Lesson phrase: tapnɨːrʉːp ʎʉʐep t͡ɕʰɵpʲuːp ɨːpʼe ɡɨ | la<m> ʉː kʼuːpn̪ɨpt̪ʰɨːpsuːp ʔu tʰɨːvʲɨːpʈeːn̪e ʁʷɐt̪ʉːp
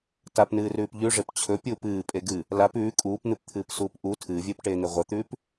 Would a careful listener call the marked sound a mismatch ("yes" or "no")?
yes